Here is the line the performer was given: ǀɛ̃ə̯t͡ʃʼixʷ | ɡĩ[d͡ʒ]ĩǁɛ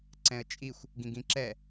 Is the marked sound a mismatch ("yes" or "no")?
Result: yes